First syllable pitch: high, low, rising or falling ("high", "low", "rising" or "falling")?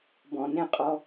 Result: low